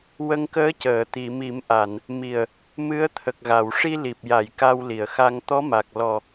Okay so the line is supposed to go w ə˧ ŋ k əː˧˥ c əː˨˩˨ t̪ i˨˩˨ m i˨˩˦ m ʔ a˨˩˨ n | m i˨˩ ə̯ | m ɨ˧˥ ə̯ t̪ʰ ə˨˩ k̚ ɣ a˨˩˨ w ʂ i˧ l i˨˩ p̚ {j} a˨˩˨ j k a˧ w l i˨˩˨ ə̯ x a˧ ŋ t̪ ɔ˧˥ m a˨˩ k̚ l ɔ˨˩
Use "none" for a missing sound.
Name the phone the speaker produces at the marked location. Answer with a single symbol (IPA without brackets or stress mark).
j